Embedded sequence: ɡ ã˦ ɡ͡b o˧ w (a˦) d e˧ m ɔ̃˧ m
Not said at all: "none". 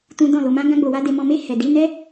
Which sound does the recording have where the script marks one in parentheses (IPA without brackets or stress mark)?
a˦